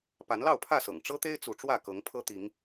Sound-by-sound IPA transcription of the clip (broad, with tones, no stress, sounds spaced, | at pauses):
p a˨˦ n l ɑ˥˨ ʊ̯ pʰ ä˥˨ s ɤ̰˨˩ ŋ ʈ͡ʂ ɤ˦ t̪ e˦ ɪ̯ t͡s u˨˦ ʈ͡ʂ w ä˥˨ k ɤ˨˦ ŋ pʰ ɤ˦ t̪ i˨˦ ŋ